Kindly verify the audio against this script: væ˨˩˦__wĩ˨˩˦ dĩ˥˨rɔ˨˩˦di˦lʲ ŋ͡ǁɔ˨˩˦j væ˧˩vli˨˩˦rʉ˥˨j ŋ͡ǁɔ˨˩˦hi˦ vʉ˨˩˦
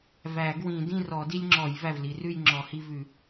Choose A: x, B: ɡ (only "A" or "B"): B